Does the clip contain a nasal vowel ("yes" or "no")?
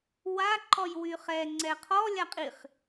no